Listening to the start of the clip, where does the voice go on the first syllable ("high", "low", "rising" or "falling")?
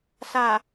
low